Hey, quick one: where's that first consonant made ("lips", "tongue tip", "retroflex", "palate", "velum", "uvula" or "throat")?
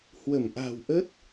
throat